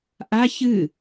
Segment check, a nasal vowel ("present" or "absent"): absent